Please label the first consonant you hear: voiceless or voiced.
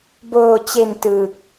voiced